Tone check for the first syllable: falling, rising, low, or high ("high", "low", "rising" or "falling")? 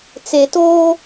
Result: low